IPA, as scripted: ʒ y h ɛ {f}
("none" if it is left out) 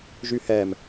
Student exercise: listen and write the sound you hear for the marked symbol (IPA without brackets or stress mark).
m